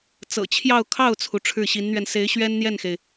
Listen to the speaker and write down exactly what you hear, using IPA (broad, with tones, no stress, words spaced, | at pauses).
t͡sɤ̰˨˩t͡ɕʰjɑ˥˧ʊ̯kʰɑ˥˩ʊ̯t͡sʰu˩ ʈ͡ʂʰɻ̩˥˩ɕi˧˥nn̪ɥɛ˧n se˧˥ɪ̯ɕɥɛ˥nn̪jɛ˥˩nxe˩ɪ̯